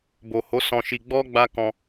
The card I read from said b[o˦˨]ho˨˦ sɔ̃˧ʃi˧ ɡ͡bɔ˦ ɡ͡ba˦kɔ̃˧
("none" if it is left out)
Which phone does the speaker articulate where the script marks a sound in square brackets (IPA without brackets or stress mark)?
o˨